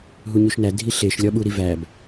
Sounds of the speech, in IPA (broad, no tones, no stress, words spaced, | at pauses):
ɦuɲuʃnæ dʱiɬeʃ lʲɒɓuɾivæb